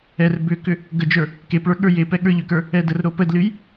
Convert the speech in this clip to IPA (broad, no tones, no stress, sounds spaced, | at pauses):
ɛ r b ʏ k ʏ | ɡ ə d͡ʒ ə˞ | k e p ɭ ə˞ ɠ ə˞ j e p ɛ ɠ ə˞ ʎ ʏ k ə˞ | ɛ d ə r ɾ o p ə d l ɨ j